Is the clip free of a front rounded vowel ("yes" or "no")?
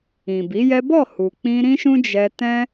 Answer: yes